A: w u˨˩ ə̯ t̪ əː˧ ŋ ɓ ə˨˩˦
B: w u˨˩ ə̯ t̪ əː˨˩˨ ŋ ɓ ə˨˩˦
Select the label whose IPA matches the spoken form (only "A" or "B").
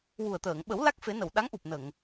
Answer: B